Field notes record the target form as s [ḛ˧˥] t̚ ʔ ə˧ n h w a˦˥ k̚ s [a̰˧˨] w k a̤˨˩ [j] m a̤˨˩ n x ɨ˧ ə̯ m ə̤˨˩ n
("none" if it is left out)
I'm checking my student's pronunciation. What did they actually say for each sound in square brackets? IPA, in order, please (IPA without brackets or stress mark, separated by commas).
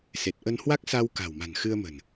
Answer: e˨˩, a˧, w